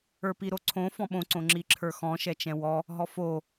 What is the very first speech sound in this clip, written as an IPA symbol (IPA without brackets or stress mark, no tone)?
ə˞